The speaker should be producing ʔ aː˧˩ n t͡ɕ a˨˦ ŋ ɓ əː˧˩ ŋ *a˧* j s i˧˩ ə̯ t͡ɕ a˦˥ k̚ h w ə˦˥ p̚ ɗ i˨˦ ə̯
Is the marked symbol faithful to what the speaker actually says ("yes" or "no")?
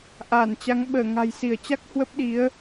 no